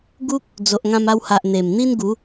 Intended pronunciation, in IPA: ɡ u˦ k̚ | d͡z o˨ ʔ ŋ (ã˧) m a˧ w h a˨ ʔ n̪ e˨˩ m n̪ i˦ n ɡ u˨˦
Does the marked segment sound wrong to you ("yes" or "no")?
no